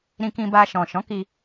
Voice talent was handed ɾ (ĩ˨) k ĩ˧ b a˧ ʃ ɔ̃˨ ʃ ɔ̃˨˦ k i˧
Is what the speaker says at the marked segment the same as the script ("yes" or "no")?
no